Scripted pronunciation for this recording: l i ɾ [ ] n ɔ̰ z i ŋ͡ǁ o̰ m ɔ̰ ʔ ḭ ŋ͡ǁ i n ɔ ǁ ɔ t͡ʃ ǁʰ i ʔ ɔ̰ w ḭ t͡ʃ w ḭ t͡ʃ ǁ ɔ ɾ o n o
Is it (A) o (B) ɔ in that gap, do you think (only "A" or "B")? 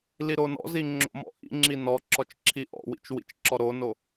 A